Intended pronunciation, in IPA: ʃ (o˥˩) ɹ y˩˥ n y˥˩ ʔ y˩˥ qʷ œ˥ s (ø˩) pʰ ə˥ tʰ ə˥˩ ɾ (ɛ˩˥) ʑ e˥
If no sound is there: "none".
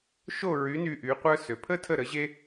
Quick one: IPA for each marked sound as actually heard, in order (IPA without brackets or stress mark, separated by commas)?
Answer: o˥˩, ø˩, ə˩˥